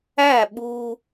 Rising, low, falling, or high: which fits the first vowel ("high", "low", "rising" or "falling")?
falling